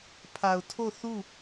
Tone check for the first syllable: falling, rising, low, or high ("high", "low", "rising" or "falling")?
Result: low